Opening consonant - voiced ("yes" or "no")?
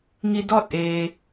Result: yes